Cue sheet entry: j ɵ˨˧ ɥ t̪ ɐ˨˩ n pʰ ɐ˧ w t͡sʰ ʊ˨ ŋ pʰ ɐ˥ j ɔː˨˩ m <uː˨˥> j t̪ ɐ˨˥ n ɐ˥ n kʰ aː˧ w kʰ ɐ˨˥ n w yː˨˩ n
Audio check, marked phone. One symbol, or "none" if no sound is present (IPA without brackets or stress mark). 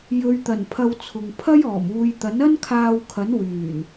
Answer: uː˧